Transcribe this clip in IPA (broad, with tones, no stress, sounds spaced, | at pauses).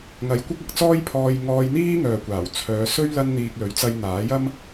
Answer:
ŋ ɐ˨˧ j kʷ ɐ˥ k̚ ɐ˨˥ k̚ t͡s ɔː˥ j pʰ ɔː˧ j ŋ ɔː˧ j n̪ iː˥ ŋ œː˨ kʷ aː˨˩ w t͡sʰ œː˨˧ s ɵ˥ ɥ l ɐ˥ n n̪ iː˧ k̚ l ɵ˨˥ ɥ t͡s ɐ˧ j n̪ aː˨˥ j ɐ˥ m